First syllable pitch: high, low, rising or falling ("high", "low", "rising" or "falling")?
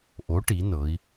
rising